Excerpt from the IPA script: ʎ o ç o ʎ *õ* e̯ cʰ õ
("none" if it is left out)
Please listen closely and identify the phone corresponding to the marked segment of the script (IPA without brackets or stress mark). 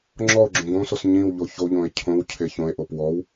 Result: õ